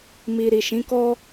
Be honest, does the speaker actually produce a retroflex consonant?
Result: no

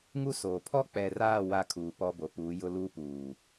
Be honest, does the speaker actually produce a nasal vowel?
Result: no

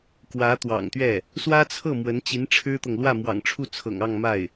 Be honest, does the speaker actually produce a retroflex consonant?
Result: yes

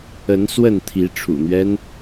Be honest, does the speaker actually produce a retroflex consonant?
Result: yes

